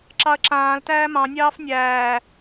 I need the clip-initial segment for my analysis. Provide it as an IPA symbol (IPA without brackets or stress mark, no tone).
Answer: ǁ